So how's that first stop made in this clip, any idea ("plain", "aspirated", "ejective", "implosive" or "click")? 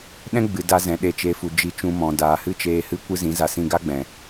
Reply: implosive